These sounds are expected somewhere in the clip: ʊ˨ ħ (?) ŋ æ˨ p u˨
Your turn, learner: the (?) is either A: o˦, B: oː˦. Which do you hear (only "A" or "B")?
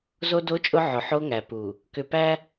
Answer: A